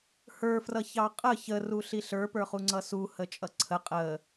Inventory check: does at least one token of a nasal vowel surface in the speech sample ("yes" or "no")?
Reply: no